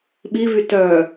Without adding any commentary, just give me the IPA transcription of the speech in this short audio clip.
ɓ i v y t œ

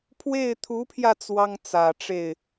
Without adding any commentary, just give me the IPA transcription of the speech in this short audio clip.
pʰ w e˥˩ ɪ̯ t̪ʰ u˧˥ pʰ j ä˧ t͡s w ɑ˥ ŋ t͡s ä˨˩ ʈ͡ʂ e˥˩ ɪ̯

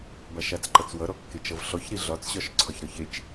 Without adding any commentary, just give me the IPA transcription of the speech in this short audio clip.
b a ʃ a t͡s ǃ ʌ t͡s w ʌ ɾ ɔ kː e t͡ʃ ʌ v ɬ ɔ ç ɾ i ɮ ɒ t͡s ɕ ɒ ʃ ǀʰ ɒ ç ɾ ɒ ç e t͡ʃ

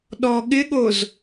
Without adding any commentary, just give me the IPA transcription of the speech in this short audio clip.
ɗ ɔ ɠ ɪ ɠ o z

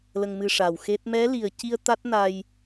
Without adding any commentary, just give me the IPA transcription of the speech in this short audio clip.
l ə˧ ŋ m ɨ˧ ʂ a˨˩ w x e˦˥ t̚ m ɛ˧˥ l i˨˩ ə̯ c i˧ ə̯ t̪ a˦˥ t̚ n a˧ j

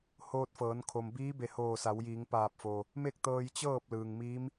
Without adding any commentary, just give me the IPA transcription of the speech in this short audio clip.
h oː˧ t̚ f ɤː˩˧ n kʰ o˩ m b iː˧˥ b e˧˩ h oː˧˩ s a˩˧ w j iː˩˧ ŋ p aː˧˩ p̚ f oː˩ | m e˥˨ k̚ t̪ ɤː˧ j t͡ɕ ɤː˥˨ p̚ l ɯː˩ ŋ m iː˧˥ m

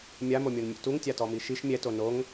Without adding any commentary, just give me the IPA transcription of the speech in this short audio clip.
mʲ a m o mʲ o n mʲ ṵ t u ŋ tʲ a t ɔ m i ʃ i ʃ mʲ ɛ t o n o ŋ

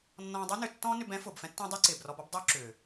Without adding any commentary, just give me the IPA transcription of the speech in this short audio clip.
nː ɔ̃ː˧ dˤ y˦ n ʏ˨ tː ɔ̃ː˦ n ʏ˧ b ɛ̃˦ f ʊː˨ b f ɛ̃˦ tː ɛ̃˦ dˤ ʏː˦ ǀ ɪː˨ b r ɔ˧ b ɔ˦ b dˤ ʊː˦ ǁ ʏː˨

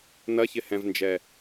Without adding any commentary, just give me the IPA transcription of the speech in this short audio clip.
n ɐ ç ɪ h ɛ̃ v n d͡ʒ ɛ

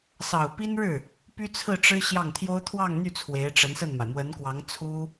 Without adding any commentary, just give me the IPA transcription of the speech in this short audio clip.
s ɑ˨˩ ʊ̯ p i˥ n ɻ ɻ̩˥˩ | p y˥ t͡sʰ ɹ̩˥˩ ʈ͡ʂ ɻ̩˥ ɕ j ɑ˥˩ ŋ t̪ʰ j o˥ ʊ̯ t̪ʰ w ɑ˥˧ ŋ n̪ y˥˩ t͡sʰ w e˧˥ ɪ̯ ʈ͡ʂ ə˧˥ n s ə˥˩ n m a˩ ɪ̯ m w ə˧˥ n k w ɑ˧˥ ŋ t͡sʰ u˥

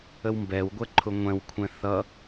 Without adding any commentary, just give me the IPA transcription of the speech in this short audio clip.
ə w m b ɛ w ɡʷ ɛ ǃʰ ʊ ŋʷ ɛ̃ w kʷʰ ɛ̃ θ ʌ

